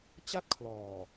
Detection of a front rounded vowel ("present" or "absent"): absent